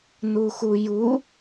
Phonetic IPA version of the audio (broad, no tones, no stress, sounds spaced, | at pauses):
n u x u j u